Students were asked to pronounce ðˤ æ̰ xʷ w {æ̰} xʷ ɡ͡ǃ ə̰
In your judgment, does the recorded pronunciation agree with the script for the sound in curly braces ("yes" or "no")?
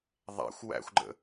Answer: yes